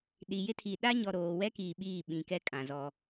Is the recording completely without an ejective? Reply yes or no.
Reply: no